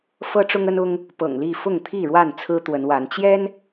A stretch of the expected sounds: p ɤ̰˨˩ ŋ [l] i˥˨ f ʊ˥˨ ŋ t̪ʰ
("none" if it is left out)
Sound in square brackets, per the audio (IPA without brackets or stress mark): l